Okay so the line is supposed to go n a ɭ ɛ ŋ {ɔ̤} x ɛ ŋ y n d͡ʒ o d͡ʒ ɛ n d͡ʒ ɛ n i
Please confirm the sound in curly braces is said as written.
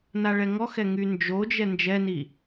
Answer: no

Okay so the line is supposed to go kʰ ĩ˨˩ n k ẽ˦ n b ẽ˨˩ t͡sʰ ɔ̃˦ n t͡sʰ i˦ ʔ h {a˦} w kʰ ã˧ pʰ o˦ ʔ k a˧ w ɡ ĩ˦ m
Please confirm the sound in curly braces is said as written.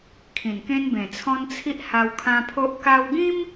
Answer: no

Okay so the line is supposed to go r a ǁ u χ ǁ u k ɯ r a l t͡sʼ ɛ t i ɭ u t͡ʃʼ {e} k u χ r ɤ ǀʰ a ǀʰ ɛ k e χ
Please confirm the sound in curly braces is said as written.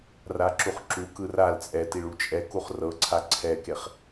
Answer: no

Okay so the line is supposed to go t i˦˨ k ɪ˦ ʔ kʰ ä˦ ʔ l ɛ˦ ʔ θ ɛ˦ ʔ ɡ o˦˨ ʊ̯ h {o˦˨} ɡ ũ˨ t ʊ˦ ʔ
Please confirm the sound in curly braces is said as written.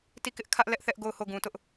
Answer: yes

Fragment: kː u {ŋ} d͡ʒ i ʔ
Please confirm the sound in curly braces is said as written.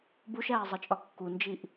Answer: no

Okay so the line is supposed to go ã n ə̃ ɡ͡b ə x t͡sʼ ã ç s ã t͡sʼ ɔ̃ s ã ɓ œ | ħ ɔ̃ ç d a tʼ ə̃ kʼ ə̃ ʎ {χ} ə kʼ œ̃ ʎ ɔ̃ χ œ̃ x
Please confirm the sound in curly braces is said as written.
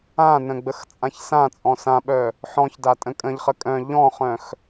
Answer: yes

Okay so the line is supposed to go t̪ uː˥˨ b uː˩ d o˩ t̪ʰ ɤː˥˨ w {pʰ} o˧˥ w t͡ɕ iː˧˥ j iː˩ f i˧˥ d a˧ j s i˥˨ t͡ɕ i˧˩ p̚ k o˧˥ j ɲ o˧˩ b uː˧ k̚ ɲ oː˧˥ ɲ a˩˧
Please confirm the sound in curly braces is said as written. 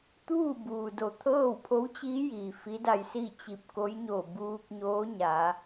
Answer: yes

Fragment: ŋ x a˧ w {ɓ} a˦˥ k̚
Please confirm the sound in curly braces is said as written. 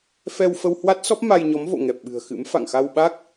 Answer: yes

